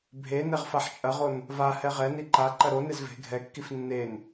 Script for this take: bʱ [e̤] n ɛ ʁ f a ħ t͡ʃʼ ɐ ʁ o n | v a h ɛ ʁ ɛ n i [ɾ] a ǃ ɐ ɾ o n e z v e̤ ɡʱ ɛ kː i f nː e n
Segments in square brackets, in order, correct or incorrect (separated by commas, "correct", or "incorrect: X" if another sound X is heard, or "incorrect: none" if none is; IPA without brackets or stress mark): incorrect: e, incorrect: ǃ